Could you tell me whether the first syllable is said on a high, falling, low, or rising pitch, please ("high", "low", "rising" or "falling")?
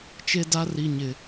high